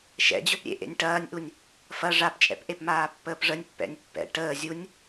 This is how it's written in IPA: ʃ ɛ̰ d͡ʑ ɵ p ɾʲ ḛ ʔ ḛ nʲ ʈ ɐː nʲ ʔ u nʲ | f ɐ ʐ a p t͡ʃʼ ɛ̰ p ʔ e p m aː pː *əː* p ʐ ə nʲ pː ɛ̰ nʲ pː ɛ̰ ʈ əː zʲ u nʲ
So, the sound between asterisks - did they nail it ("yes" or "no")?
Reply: yes